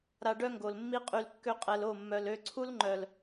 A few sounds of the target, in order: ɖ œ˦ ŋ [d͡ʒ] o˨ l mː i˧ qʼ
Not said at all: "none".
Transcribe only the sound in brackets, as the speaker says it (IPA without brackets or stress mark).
ɡ